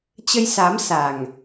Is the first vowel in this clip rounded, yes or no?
no